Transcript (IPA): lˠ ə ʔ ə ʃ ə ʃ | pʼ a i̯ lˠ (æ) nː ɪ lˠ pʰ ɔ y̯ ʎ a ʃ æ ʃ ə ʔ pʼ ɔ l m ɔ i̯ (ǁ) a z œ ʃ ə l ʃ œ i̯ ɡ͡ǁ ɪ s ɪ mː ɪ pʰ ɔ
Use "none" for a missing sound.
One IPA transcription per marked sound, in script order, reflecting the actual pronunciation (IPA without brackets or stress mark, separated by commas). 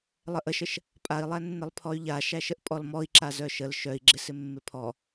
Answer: æ, ǁ